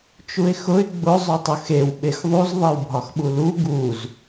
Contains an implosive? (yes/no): yes